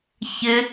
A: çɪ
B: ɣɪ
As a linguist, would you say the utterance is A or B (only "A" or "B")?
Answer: A